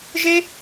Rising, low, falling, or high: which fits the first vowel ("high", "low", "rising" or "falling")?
high